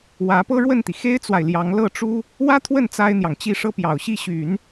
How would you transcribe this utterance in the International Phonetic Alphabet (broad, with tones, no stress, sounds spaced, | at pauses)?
w ä˧˥ p ɤ˥ ɻ w ə˥˩ n t̪ i˩ x e˥ ɪ̯ t͡s w a˨ ɪ̯ l j ɑ˧˥ ŋ l ɤ˥˩ ʈ͡ʂ u˥ | w ä˥ t̪ʰ w ə˥˩ n t͡s a˥ ɪ̯ n̪ j ɑ˨ ŋ t͡ɕ i˥˩ ʂ ɤ˥ p j ɑ˨˩ ʊ̯ ɕ i˥˩ ɕ y˨˩˦ n